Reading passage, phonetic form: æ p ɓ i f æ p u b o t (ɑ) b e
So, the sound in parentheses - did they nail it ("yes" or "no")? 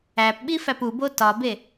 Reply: no